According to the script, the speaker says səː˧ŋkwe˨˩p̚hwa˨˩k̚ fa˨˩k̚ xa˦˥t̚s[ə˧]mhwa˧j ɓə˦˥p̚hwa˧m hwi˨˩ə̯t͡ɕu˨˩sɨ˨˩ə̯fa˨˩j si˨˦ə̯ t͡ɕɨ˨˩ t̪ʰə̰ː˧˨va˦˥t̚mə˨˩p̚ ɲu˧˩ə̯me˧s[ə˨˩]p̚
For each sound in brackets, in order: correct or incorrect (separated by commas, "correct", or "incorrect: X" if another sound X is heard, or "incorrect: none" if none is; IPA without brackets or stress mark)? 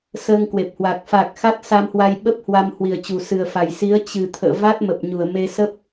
incorrect: a˧, incorrect: ə˦˥